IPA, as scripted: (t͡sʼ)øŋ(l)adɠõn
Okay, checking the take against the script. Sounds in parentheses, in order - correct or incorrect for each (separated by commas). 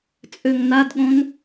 correct, incorrect